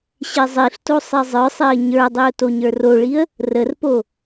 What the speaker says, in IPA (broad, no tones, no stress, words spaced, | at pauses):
ɕezˤiɬto sˤezˤə˞sˤeə̯ ɲə˞dˤiʊ̯ toɲə˞roɭiə̯ | rərpo